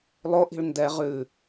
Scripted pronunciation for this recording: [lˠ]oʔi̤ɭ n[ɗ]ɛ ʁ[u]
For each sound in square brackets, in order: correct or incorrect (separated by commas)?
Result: correct, incorrect, incorrect